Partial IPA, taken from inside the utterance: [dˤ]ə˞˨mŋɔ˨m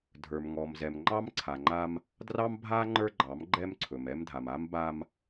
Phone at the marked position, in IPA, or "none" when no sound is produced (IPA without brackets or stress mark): dʱ